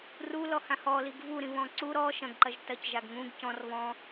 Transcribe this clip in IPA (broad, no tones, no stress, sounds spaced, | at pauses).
r u l ɔ h ã h ɔ l i ɡ v u ɾ ĩ β ɔ̃ ǀ u ɾ ɔ ʃ ɐ̃ ɡ ǃ ɐ ʒ t ɐ c ʒ a ɡ ŋ ũ ɡ c ɔ̃ r β ɔ̃